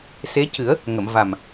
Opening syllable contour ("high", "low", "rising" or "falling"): rising